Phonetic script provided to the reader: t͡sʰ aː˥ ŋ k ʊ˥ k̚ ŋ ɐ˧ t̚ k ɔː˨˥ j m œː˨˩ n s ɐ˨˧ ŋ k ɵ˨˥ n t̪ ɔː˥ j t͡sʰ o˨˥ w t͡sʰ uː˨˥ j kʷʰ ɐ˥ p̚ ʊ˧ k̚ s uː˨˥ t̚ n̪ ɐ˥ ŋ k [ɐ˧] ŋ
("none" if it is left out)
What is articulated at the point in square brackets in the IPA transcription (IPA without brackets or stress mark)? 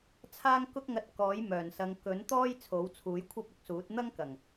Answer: ɐ˨˩